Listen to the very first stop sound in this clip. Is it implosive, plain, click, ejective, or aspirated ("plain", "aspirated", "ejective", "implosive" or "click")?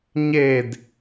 plain